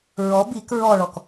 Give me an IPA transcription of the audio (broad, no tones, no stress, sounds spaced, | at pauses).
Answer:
ɹ ɔ b i k ɹ ɔ ɭ ɔ k